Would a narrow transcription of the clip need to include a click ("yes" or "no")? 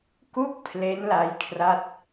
no